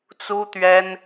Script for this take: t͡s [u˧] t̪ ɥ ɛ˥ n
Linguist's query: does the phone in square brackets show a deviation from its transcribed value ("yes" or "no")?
yes